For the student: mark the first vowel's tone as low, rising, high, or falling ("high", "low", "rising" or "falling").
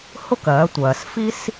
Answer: high